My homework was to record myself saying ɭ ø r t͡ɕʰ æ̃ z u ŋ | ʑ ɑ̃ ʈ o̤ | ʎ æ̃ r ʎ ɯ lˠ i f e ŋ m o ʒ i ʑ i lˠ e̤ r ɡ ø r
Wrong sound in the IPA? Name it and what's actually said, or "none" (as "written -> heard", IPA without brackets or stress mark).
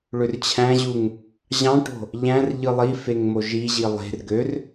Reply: z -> ʑ